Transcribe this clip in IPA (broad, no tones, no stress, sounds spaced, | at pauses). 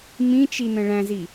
m ĩ t͡ʃ i n ə̃ ɭ æ̃ z i